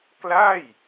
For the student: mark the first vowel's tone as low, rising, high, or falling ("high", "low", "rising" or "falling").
falling